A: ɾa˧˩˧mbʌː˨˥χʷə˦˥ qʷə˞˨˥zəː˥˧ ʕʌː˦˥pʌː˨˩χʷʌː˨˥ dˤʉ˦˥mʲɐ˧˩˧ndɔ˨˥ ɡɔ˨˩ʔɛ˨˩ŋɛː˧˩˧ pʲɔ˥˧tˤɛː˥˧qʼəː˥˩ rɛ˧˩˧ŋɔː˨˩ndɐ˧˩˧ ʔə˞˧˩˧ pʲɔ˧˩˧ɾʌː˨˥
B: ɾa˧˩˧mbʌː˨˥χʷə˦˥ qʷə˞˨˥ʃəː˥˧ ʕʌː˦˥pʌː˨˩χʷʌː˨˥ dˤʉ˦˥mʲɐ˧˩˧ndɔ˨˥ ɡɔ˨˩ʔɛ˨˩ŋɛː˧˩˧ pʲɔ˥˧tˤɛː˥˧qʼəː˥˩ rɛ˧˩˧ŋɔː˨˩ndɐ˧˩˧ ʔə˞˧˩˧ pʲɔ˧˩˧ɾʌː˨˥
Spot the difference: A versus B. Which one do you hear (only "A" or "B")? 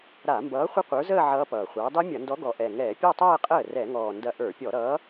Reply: A